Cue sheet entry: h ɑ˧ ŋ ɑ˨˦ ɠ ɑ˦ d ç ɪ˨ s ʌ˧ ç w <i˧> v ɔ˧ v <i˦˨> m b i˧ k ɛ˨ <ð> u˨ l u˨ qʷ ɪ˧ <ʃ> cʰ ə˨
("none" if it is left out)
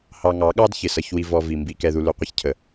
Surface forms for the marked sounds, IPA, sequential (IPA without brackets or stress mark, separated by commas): i˧, i˨, ð, ç